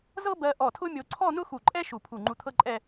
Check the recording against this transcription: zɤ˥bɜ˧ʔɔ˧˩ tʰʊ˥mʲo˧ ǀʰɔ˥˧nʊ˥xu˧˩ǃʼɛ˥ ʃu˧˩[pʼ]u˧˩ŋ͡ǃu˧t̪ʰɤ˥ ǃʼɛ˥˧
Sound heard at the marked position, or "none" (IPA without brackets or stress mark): pʰ